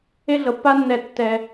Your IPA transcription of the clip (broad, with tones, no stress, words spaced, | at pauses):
e˦ɮɤ˩pːa˦nːɛ˨ tːɛ˩